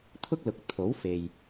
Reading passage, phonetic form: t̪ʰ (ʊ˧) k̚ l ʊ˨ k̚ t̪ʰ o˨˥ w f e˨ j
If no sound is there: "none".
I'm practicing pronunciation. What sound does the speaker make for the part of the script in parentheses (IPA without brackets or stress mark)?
ʊ˥